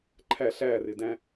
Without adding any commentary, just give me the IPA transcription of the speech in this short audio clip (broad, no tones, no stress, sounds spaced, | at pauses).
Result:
ǃʰ æ ɬ æ r ɪ d æ̃